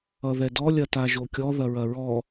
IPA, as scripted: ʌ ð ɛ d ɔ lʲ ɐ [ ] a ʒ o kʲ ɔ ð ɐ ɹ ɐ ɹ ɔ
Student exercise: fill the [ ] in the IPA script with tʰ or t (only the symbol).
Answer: t